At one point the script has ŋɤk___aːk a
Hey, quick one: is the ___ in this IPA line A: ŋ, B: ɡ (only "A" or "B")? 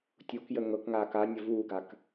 A